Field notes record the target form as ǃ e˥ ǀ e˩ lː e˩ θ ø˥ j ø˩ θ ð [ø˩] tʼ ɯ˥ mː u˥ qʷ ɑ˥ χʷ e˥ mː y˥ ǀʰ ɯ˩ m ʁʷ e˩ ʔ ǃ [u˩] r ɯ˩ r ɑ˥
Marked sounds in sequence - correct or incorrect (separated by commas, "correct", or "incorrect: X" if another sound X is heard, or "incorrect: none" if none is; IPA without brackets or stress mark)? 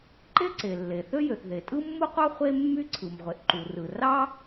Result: incorrect: e˩, correct